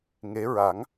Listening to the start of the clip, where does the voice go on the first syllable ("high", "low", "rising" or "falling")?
rising